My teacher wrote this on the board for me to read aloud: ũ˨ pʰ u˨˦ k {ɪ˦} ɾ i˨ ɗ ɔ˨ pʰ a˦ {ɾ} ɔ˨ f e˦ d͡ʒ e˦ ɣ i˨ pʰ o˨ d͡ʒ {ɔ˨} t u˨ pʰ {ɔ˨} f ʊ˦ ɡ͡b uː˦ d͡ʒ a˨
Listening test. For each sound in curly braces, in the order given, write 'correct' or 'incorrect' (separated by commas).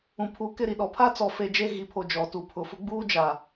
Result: correct, incorrect, correct, incorrect